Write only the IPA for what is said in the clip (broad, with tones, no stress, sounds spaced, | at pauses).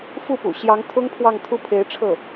f u˥˩ p ṵ˨˩ ɕ j ɑ˧˥ ŋ t̪ʰ ʊ˥ ŋ pʰ w ɑ˥˧ ŋ t̪ʰ u˥˩ pʰ e˧˥ ɪ̯ ʈ͡ʂʰ ɤ˥˩